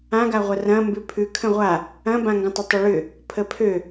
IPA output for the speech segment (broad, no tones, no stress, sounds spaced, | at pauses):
ã ɡ a ʁʷ ɐ r ɐ̃ m b ʉ pʰ ʉ kʰ ə̃ ʁʷ a | ɐ̃ b ã ŋ ɡ ə̃ tˤ ʏ tˤ ʏ ɭ ʏ | pʰ ə pʰ ø